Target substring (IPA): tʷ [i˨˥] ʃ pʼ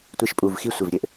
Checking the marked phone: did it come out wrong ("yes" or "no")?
no